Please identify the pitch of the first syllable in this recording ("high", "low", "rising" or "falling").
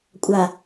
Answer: low